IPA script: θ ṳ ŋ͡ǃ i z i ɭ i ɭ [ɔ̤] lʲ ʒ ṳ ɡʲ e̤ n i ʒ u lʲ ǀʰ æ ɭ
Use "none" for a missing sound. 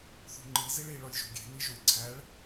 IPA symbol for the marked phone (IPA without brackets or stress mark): ɔ